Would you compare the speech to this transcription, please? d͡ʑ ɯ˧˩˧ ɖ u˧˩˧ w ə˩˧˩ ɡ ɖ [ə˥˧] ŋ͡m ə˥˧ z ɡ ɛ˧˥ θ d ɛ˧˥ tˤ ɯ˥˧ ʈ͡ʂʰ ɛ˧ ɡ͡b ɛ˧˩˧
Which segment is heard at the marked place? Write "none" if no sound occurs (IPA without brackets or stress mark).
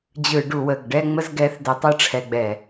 ɛ˥˧